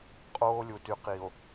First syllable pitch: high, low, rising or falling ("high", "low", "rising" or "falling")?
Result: high